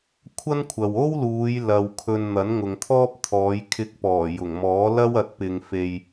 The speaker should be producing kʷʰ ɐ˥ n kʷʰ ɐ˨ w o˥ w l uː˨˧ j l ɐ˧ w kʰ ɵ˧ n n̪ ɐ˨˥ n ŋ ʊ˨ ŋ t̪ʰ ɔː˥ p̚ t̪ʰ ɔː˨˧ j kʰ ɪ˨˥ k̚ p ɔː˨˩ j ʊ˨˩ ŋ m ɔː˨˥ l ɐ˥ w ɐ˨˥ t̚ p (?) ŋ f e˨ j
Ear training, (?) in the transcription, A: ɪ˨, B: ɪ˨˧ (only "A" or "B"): A